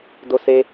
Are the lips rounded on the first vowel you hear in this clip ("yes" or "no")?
yes